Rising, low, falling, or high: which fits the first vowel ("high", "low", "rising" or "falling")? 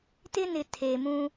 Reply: high